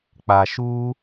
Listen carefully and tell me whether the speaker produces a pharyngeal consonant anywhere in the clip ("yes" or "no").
no